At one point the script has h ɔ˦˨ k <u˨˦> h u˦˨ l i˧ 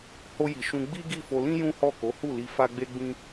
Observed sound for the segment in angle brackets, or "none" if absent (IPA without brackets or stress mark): o˨˦